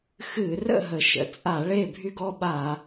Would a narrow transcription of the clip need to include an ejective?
yes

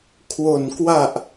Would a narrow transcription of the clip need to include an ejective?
no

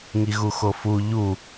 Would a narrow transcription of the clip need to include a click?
no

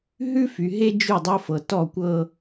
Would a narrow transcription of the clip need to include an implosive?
no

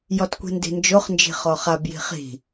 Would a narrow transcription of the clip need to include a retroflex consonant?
no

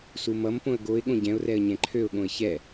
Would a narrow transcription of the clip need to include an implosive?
yes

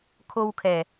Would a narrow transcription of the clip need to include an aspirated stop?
yes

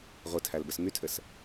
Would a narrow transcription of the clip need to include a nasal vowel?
no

